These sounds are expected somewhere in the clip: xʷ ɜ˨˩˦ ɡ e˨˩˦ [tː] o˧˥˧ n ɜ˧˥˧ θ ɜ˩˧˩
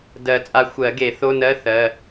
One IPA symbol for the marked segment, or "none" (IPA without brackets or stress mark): θ